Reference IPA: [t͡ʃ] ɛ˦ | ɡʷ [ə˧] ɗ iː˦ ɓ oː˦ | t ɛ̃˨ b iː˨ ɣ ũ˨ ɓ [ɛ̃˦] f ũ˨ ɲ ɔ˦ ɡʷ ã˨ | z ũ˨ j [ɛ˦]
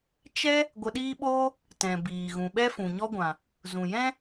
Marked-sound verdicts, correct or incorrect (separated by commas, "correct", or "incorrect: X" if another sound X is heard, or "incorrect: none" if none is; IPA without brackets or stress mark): correct, correct, incorrect: ɛ˦, incorrect: ɛ̃˦